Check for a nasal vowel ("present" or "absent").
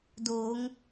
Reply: absent